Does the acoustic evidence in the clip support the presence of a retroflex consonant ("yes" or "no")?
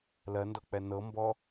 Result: no